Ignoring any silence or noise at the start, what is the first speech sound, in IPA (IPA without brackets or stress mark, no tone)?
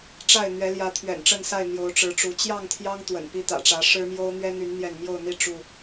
ʈ͡ʂ